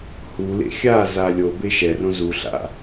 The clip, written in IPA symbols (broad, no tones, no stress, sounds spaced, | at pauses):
h u l ḛ xʲ a z a lʲ o b e ʃ ɛ r õ z u ɬ a̰